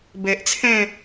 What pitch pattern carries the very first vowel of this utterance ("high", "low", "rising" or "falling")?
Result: low